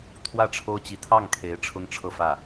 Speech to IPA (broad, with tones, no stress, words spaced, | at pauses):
t̪ʰwä˥˩ʈ͡ʂʰo˥ʊ̯t͡ɕi˧˥ t̪ʰɑ˥˩ŋkʰe˧˥ɪ̯ ʈ͡ʂʰʊ˥ŋʈ͡ʂʰɤ˥˧fä˥˩